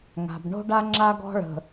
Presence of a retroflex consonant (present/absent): present